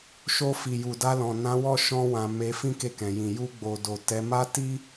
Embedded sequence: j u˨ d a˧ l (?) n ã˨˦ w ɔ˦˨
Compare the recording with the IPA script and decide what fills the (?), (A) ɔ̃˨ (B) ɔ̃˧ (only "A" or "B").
A